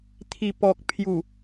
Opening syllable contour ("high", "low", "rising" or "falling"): low